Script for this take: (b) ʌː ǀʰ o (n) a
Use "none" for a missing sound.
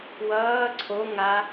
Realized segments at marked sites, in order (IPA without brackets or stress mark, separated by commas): w, ŋ